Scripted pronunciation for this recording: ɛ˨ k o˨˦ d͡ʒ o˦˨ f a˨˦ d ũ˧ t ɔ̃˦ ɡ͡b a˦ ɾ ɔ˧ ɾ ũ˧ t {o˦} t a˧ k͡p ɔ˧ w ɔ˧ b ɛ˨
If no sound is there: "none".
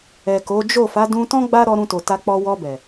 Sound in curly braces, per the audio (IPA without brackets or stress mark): o˨